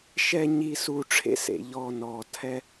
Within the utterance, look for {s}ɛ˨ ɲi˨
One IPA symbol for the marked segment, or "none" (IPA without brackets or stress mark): ʃ